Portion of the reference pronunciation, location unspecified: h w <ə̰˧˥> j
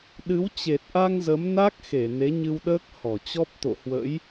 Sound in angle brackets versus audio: correct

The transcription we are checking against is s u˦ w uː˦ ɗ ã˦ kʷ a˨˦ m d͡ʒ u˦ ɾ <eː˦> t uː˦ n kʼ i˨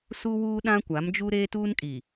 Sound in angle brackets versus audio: correct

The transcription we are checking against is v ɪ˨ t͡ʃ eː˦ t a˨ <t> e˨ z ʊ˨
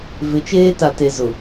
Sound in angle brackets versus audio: correct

